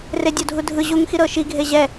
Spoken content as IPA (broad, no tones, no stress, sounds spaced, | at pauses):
r e dʲ o dʱ u dʱ ɯ ʑ u ŋ x i ɾ ɤ ʃ i ɡʱ e ʑ ɛ